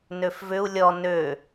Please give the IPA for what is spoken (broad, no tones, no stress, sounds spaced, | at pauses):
n ø f v ʏ u̯ lʲ ɔ n ø